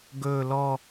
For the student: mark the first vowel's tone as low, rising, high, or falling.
low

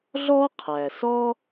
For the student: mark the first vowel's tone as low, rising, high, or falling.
high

